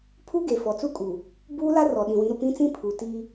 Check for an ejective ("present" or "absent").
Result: present